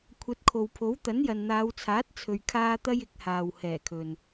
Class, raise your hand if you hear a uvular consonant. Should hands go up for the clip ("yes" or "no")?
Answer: no